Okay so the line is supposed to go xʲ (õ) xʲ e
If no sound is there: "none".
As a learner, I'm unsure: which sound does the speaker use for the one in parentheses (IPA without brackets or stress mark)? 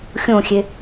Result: õ